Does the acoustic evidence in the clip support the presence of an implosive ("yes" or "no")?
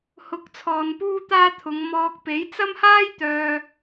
no